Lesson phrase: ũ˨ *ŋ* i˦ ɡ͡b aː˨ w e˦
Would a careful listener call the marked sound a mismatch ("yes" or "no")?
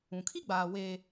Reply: yes